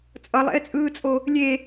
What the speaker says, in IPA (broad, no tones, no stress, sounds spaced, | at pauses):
t͡sʼ ʌ lˠ ɛ̰ ɪ̯ t͡sʼ ɯː t͡sʼ o | lʲ e